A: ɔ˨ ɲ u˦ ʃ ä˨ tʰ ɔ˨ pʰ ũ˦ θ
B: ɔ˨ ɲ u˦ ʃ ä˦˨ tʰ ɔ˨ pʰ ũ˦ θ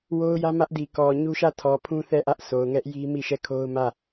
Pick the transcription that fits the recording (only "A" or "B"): B